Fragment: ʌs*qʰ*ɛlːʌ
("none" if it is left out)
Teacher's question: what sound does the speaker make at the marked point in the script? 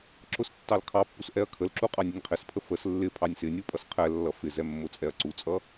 qʰ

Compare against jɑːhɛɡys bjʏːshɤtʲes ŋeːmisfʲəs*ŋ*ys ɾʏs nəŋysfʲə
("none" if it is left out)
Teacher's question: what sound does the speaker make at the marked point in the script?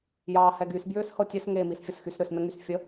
x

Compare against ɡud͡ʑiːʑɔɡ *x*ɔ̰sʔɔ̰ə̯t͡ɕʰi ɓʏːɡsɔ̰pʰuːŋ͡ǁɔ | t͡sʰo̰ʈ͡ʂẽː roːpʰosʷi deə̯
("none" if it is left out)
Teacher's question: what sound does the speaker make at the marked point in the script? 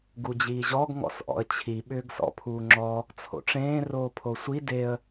ŋ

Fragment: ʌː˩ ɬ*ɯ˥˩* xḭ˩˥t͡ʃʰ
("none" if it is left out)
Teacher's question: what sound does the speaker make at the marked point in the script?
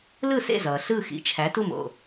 ɯ˥˩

